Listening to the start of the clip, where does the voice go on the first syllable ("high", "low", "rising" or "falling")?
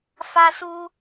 high